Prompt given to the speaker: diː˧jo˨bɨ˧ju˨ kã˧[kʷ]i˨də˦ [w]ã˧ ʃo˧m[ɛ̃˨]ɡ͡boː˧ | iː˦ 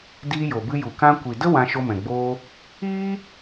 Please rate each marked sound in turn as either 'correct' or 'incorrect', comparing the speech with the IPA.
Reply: correct, correct, correct

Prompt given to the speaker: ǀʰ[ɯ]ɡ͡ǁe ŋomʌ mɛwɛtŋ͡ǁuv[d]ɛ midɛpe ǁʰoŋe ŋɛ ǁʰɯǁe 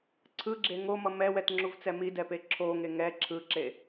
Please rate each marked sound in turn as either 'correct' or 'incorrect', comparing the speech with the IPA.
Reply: correct, incorrect

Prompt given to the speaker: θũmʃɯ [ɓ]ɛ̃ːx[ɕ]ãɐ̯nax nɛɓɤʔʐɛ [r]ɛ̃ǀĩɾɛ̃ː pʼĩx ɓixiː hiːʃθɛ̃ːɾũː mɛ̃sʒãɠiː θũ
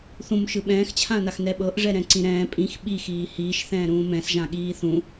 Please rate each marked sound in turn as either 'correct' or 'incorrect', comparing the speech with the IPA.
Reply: correct, incorrect, incorrect

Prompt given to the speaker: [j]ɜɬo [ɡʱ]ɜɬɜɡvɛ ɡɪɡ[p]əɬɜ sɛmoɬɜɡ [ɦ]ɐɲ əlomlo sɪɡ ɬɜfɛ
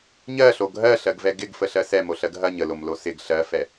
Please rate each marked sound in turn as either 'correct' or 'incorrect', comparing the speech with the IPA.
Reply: incorrect, correct, incorrect, correct

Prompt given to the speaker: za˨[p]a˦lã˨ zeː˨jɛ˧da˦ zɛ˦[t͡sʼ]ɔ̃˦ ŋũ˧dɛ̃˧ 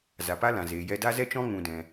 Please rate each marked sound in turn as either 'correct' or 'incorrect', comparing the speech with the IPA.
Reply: correct, incorrect

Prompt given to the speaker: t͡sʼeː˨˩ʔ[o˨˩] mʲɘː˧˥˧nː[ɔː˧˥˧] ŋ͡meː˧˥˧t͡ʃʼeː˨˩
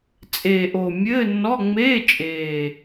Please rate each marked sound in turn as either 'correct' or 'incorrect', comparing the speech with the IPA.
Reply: correct, incorrect

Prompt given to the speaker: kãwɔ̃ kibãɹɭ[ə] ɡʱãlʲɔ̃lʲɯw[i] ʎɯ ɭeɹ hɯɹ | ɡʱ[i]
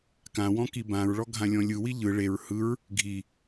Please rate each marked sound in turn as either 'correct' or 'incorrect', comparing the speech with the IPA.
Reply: incorrect, correct, correct

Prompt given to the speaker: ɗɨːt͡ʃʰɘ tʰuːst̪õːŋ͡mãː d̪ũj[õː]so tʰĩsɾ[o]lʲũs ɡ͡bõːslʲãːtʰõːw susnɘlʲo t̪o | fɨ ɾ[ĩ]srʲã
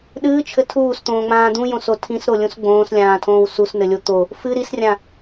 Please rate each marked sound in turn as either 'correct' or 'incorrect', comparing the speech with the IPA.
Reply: incorrect, correct, incorrect

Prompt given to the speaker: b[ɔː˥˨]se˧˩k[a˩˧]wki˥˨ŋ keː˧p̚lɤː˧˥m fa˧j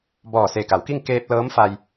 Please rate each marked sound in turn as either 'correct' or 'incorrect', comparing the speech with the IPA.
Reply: incorrect, correct

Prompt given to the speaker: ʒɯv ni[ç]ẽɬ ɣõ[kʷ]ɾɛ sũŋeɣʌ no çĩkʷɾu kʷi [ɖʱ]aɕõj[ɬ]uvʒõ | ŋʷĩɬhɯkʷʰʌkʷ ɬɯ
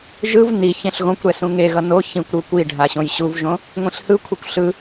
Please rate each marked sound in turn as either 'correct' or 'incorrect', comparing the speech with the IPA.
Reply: correct, correct, correct, incorrect

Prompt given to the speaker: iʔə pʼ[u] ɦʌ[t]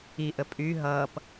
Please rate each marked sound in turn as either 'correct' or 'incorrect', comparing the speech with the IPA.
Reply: incorrect, incorrect

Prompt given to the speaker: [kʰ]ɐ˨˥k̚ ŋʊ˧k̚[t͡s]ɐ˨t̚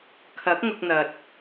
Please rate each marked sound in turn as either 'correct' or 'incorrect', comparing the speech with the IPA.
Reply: correct, incorrect

